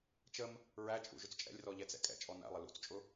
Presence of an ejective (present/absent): present